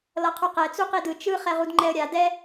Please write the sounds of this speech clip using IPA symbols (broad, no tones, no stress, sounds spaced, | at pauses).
l ʌ qʰ u q ɛ t͡s u q i d ɯ t͡ʃ ɯ χ ɛ ʁ u d ŋ͡ǃ ɛ ə̯ ɾʲ a d ɛ